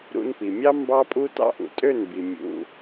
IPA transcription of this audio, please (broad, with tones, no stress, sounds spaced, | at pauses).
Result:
ɾ ṵ˧ n p i˨ mʲ ɑ˦ m b ɑ˦ pʼ u˦ t ɑ̰˦ ʔ ṵ˨ tʼ ø˦˨ n b i˨ mʲ ṵ˧